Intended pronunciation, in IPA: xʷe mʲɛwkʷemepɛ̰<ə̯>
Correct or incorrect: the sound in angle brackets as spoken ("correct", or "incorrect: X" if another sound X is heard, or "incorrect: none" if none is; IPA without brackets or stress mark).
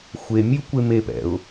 incorrect: ʊ̯